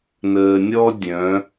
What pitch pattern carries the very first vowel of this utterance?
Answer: low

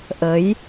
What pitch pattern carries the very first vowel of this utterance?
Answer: rising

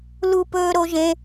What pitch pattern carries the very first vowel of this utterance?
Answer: high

